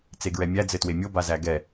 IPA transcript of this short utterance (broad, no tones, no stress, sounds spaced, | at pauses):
t͡s e ɡ ɹ ɛ mʲ æ d͡z ɘ t w e mʲ o b a z æ ɡ ɛ